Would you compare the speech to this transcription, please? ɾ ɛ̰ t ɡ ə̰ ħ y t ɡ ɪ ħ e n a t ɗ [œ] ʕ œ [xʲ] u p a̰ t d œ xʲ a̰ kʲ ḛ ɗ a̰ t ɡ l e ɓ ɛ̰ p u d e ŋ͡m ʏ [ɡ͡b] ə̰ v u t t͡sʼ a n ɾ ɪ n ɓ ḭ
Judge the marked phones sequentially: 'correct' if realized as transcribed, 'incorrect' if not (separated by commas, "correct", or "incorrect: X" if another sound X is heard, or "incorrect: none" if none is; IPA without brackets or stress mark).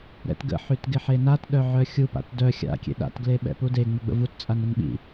correct, correct, correct